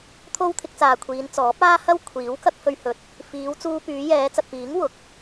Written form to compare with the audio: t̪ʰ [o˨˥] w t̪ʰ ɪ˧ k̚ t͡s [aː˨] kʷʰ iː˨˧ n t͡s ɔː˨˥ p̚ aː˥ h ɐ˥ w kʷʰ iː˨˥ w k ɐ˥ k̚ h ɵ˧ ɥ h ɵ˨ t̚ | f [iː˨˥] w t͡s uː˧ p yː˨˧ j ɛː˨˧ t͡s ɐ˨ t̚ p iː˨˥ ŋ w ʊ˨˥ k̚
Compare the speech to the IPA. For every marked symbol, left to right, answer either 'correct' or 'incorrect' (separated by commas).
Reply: incorrect, correct, incorrect